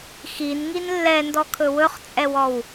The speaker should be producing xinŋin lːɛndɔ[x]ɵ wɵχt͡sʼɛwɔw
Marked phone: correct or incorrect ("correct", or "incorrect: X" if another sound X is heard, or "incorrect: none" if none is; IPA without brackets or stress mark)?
incorrect: kʰ